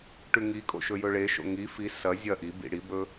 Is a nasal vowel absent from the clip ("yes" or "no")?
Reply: yes